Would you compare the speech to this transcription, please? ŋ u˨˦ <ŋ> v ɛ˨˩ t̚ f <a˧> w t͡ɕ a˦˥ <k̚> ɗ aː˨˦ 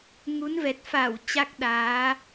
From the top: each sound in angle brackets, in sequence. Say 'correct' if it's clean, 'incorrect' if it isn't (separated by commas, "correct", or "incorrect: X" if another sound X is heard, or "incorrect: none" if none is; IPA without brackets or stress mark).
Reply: incorrect: n, incorrect: a˧˩, correct